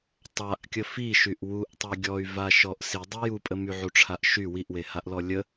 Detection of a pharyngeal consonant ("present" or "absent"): present